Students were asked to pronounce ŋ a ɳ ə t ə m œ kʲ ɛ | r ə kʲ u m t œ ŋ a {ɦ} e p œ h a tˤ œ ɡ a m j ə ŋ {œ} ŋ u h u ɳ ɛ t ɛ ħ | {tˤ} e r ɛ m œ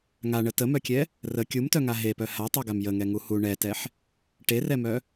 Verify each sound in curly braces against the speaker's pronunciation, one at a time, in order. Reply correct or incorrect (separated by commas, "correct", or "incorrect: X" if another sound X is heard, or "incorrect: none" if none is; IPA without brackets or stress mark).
correct, incorrect: ɛ, incorrect: ʈ